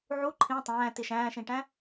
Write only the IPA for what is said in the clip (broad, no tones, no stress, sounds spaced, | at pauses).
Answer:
ʕ u ǃʰ ĩ tˤ æ̃ː t i ʃ æ̃ː ʃ ĩ ʈ æ̃